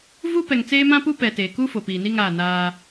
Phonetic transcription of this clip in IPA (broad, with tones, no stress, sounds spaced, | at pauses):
v u˦ p ɛ˨ ŋ t͡s eː˦ m ã˦ p u˦ p ɛ˨ t eː˨ k u˦ f o˨ p iː˨ n i˦ ŋ aː˦˨ n aː˦